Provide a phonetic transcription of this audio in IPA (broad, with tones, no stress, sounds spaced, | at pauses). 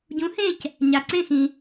ɟ ũ˩˥ h ẽ˥˩ c | ɲ a˩ ǀ ẽ˥˩ x ĩ˩